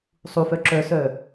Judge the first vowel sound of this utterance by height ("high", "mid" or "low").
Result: high